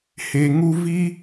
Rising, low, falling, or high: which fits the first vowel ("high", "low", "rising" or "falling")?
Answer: low